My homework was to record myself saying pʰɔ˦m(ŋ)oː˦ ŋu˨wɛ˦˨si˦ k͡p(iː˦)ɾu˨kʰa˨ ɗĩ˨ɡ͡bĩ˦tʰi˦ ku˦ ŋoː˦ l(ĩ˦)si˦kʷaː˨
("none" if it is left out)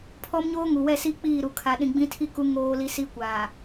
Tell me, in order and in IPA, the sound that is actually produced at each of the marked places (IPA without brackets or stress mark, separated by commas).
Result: ɲ, iː˦˨, i˦